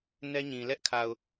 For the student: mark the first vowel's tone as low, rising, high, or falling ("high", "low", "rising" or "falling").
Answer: high